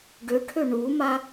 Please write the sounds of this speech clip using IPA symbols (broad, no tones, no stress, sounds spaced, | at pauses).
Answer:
ɖ ʏ ʈʰ ʏ ɳ u m a